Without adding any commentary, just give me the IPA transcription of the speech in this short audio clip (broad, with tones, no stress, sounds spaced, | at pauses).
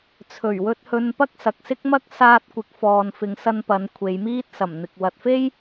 t͡sʰ ɵ˨˩ ɥ w ɵ˧ t̚ h ɵ˧ n p ɐ˥ k̚ s ɐ˨ k̚ s ɪ˥ k̚ m ɐ˥ k̚ s aː˧ t̚ kʷ ɪ˨ k̚ f ɔː˨ n f ɪ˨˧ ŋ s ɐ˧ n p ɐ˨˧ n kʷʰ e˨˧ j m iː˥ t̚ s ɐ˨˩ m n̪ ɪ˨ k̚ w ɐ˨ t̚ f e˥ j